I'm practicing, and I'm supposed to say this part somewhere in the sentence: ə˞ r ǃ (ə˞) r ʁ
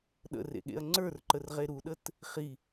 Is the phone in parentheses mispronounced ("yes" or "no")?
yes